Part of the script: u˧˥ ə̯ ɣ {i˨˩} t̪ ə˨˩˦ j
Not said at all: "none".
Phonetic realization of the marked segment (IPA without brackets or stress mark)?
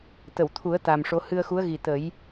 i˨˩